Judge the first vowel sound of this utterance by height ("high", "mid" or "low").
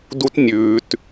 high